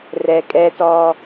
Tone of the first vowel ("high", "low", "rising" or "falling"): low